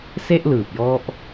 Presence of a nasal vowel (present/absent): absent